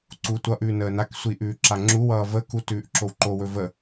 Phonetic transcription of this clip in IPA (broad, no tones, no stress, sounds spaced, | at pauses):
ǀ uː tʷ ʌ ʔ ʉː n əː n a k sʷ i ʔ ʉː ǁ a ŋ͡ǁ u w ʌː v ə k u t ʉː ʔ ǁ o w ǃ o w ɵ v ə